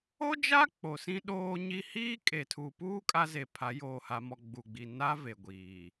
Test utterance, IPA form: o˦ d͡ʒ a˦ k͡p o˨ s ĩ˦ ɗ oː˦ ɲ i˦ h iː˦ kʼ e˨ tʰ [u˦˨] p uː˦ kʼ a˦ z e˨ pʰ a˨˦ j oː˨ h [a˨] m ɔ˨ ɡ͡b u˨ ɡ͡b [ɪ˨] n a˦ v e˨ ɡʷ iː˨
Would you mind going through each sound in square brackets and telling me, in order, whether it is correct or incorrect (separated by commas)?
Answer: incorrect, correct, incorrect